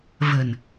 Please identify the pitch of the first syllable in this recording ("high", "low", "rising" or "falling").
low